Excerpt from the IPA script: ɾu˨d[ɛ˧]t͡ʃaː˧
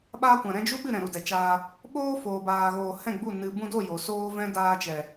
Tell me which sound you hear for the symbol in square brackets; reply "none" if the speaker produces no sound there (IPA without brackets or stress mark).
ɛ˨